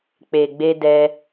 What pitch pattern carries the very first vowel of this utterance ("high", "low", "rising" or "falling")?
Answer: low